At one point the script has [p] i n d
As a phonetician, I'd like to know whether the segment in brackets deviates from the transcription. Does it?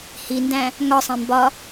yes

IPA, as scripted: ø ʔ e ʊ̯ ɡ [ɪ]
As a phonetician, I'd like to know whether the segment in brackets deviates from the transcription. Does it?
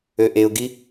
yes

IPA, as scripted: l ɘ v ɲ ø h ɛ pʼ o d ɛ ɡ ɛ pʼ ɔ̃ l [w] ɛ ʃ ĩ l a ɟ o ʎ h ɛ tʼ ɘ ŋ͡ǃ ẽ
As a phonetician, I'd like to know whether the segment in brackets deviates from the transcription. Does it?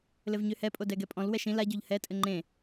no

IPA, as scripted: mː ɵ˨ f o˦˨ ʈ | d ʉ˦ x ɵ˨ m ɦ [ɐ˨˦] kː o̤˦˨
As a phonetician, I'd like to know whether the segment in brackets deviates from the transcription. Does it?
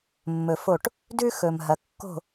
no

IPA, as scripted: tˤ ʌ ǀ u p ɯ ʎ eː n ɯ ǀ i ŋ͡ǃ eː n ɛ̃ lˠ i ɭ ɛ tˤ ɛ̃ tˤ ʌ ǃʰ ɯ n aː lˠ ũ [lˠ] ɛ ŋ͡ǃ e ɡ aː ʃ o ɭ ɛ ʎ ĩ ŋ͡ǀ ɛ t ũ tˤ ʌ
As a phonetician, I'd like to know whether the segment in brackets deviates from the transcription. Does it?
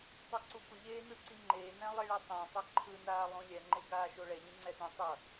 yes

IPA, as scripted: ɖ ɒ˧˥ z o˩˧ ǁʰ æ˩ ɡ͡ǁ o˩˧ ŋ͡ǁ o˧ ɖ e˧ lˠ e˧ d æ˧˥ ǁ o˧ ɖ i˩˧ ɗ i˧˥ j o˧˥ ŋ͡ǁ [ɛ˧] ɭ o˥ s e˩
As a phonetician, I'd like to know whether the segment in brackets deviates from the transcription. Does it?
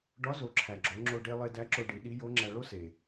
yes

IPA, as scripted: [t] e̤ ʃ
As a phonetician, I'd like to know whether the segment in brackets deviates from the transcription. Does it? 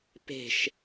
yes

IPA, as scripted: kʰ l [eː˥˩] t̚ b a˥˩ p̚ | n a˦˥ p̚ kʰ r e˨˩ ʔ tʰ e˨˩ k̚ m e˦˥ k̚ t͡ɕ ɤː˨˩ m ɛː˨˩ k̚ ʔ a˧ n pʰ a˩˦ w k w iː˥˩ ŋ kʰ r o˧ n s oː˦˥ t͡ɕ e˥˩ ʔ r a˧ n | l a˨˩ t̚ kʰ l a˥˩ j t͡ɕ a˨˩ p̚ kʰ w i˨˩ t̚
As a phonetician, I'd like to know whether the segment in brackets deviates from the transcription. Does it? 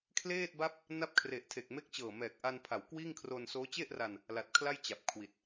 no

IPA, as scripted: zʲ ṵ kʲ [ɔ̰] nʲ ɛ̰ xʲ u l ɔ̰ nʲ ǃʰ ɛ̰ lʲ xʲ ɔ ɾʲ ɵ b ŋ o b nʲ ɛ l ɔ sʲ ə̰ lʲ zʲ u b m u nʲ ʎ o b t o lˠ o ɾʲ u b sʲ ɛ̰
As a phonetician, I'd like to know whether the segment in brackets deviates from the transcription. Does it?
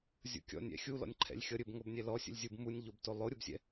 no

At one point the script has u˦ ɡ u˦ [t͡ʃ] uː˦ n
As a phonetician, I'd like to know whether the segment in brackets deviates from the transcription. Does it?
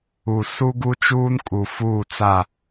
no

